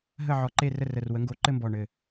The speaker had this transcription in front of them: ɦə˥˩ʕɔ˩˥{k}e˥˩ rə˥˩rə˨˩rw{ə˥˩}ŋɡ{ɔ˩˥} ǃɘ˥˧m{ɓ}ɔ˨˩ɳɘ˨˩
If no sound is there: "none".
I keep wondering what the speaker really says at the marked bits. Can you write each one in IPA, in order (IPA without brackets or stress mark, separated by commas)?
ǃ, ə˩˥, o˩˥, b